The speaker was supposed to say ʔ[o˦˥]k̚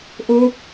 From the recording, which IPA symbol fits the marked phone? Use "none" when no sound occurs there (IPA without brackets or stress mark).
o˦˥